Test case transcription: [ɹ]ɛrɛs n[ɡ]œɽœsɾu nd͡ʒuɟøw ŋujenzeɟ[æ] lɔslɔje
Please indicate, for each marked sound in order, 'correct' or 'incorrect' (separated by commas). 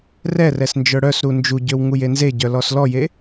incorrect, incorrect, incorrect